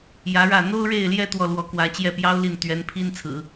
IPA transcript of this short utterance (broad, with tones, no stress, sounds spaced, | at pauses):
j ä˧˥ ɻ ä˥˩ n̪ o˥ ʊ̯ ɻ e˥˧ ɪ̯ l j ɛ˥˧ t̪ w ɔ˥˩ l w ɔ˧˥ k w ä˧˥ t͡ɕ j ɛ˥˩ p j ɑ˥ ʊ̯ l i˥˩ n t̪ ɥ ɛ˧˥ n pʰ i˥ n t͡sʰ ɹ̩˨˩˦